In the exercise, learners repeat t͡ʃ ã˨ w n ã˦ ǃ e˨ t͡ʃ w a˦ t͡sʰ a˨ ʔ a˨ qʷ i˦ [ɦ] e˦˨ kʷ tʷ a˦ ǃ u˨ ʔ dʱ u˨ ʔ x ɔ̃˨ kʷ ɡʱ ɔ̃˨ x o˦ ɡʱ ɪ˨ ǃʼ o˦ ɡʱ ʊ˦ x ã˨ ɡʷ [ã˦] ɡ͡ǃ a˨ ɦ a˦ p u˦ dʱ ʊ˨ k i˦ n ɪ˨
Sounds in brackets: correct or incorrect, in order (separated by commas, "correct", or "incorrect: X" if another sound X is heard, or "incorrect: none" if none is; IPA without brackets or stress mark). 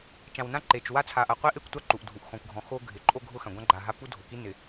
incorrect: ʔ, correct